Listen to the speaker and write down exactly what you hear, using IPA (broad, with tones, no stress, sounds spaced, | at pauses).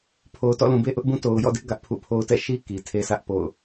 pʰ o˨ ʊ̯ t ɔ̰˦˨ l ũ˨ b e˦ ʔ ʊ˦ ʔ b ũ˦ t o˨ ʊ̯ j ɔ̰˦˨ d ɪ˦ ʔ ɡ ä˦ ʔ pʰ ṵ˦˨ pʰ o˦ ʊ̯ t ɛ̰˦˨ ʃ i˦ k i˨ tʰ e˦ sʰ ä˦ ʔ p o̰˦˨ ʊ̯